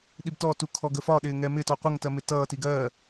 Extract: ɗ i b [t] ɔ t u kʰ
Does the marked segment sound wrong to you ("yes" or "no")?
no